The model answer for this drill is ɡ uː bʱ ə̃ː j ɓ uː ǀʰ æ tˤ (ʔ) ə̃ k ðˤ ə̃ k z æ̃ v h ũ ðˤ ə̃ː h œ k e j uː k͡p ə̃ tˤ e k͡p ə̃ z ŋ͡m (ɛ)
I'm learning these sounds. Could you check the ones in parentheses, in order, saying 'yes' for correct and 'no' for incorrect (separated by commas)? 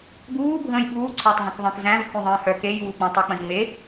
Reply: no, no